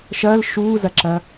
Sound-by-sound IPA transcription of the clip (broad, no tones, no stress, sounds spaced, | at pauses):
ʃ ɐː l ʃ uː z ɐ ǁ ɐ